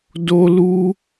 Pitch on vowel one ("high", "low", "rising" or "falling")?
high